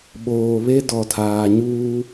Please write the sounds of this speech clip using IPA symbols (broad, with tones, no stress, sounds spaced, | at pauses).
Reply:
ɓ oː˨ β e˦ d ɔ˨ tʰ aː˨ ɲ uː˦